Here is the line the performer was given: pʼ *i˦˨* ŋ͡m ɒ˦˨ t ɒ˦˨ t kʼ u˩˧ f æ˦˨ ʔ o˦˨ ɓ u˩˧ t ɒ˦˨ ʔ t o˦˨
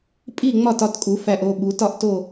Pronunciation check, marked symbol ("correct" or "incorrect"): correct